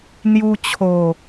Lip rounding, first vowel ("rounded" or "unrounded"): rounded